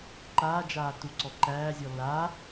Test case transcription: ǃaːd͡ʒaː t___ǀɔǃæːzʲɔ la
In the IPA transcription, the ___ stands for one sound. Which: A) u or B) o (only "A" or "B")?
A